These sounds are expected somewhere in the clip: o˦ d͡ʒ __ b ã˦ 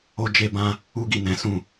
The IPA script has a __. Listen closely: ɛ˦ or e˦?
e˦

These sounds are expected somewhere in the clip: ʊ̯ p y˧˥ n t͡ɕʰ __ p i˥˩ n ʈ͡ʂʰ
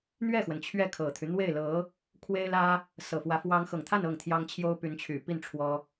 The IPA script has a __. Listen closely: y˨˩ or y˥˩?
y˨˩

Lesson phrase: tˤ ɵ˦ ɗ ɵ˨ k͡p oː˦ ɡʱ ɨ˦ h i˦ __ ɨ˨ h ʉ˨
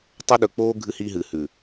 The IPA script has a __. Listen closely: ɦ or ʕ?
ɦ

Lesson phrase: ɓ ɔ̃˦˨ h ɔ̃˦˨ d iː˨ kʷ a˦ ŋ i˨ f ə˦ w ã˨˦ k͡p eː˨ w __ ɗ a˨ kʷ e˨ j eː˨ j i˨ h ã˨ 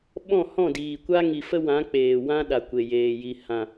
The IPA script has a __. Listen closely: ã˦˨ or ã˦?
ã˦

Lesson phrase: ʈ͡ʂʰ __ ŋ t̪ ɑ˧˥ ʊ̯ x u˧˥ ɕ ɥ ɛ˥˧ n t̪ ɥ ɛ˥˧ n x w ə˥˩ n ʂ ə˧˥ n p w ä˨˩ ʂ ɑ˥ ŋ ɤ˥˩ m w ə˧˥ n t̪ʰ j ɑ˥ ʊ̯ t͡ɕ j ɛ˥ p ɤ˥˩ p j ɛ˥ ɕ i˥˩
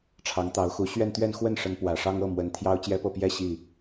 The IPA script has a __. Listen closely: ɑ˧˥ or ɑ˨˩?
ɑ˧˥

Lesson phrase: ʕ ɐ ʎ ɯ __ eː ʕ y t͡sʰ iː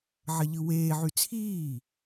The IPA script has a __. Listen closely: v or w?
w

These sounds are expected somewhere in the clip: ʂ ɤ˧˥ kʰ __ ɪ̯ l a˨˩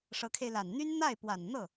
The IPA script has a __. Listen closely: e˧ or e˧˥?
e˧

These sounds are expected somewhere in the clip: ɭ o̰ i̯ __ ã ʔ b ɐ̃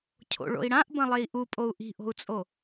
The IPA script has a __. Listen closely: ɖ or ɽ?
ɽ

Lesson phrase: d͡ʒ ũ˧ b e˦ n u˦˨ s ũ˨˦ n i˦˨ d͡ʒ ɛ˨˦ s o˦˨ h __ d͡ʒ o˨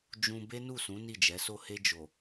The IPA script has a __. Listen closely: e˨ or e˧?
e˧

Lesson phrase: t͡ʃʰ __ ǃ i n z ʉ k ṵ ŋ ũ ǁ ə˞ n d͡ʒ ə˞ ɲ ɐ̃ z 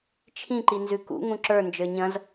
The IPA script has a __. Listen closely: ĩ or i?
ĩ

